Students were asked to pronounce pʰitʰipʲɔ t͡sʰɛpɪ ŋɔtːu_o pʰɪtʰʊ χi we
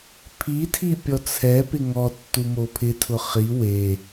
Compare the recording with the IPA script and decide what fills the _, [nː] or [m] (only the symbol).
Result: m